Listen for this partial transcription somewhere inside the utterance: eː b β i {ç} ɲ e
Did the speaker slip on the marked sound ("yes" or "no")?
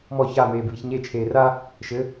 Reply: no